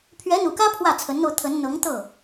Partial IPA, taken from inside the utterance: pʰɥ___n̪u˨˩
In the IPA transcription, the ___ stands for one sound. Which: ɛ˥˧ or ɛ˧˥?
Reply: ɛ˧˥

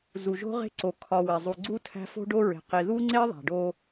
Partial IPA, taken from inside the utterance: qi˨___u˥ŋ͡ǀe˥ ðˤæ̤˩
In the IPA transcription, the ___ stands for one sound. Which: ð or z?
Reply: ð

